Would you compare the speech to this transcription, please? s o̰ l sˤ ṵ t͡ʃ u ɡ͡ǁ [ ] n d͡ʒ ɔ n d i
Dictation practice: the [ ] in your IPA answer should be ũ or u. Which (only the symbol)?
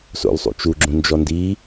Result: ũ